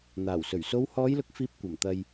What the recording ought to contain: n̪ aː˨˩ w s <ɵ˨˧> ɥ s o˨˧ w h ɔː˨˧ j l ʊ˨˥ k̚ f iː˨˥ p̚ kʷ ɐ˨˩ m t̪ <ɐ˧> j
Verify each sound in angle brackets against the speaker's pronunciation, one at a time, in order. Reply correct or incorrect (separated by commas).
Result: incorrect, correct